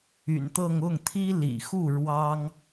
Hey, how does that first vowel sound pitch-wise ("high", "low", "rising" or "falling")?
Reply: low